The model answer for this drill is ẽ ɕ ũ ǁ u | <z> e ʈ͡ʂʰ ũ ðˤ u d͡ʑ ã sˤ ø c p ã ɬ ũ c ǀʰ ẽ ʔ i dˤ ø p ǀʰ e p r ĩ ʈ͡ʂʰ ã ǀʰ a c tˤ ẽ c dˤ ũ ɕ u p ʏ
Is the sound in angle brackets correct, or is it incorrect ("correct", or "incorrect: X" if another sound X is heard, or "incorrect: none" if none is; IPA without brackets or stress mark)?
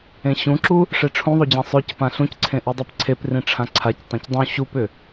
incorrect: ʂ